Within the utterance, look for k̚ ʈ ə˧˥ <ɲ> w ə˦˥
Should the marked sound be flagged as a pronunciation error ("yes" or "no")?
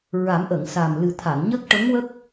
yes